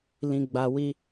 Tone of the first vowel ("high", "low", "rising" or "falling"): high